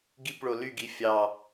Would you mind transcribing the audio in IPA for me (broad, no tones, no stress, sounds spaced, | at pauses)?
ɡ i p ɭ o l y ɡ i fʲ ɑ